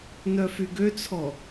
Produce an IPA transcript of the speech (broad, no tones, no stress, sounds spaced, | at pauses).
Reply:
n œ f y ɡ ø t͡sʰ ɔ